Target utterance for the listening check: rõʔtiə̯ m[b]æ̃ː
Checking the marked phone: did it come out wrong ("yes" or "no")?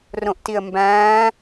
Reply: no